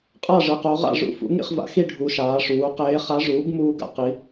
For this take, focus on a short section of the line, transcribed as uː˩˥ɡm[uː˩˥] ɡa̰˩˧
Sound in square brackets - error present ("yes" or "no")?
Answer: yes